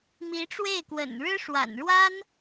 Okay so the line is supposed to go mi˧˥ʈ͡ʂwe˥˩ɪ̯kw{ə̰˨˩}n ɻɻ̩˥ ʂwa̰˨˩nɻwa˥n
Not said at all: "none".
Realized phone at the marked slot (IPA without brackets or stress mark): ə̰˨˩